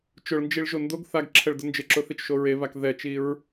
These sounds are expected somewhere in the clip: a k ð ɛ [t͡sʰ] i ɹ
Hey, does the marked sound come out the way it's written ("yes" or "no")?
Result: no